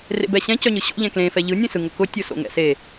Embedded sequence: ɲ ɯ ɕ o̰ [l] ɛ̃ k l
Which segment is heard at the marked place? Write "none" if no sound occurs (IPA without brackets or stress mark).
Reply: ʎ